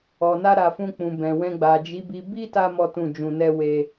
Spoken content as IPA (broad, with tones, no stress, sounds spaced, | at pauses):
ɔ˨ n a˧ ɾ a˨ f ũ˧ k͡p ũ˨ b ɛ̃˨ w ɛ̃˧ ɡ͡b a˨ d͡ʒ i˨˦ b i˧ b i˦ t a˧ m ɔ˦ t ũ˦˨ d͡ʒ ũ˧ n ɛ˦ w e˧